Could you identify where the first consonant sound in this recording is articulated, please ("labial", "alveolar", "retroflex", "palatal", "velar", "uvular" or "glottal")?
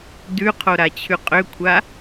alveolar